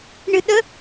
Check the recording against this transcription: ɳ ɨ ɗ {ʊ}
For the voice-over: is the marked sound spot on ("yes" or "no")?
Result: no